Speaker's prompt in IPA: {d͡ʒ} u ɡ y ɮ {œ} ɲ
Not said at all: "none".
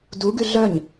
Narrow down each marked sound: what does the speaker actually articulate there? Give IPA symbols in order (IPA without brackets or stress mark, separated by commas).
d, œ